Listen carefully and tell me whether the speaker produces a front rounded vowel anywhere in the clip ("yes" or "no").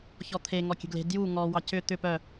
yes